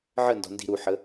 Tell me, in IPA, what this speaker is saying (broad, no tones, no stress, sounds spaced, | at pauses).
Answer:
ʕ ə n d ɔ̤ n d i̤ ɾ u ħ ə